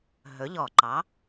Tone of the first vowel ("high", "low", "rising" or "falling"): rising